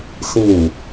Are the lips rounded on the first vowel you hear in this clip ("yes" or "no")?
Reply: no